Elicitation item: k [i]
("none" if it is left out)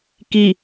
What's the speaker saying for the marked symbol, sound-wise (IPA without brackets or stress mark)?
i